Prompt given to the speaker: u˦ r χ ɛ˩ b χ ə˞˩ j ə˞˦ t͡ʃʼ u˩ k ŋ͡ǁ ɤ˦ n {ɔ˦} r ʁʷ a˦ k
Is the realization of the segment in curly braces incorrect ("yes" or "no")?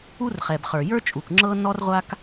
no